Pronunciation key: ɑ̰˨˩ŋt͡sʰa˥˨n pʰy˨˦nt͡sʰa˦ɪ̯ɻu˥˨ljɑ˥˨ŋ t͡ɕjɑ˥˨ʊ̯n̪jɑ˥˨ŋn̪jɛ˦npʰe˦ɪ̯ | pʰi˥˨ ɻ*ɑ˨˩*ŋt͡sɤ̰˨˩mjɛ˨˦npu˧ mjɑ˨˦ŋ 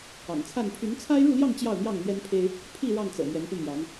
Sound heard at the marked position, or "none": ɑ˥˨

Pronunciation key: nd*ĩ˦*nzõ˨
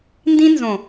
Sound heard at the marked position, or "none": ĩ˦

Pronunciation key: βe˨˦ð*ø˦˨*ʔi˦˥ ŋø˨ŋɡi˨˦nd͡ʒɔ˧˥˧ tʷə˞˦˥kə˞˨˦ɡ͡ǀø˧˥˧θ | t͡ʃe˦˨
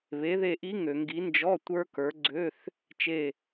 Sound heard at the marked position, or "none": e˦˨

